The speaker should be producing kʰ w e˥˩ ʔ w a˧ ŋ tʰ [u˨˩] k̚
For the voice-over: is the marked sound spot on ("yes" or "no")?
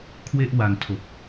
no